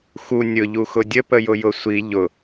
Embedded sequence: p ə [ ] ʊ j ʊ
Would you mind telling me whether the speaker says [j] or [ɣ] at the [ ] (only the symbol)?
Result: j